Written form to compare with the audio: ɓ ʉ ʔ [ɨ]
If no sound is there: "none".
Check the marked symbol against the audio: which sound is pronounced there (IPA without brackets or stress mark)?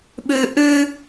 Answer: ʉ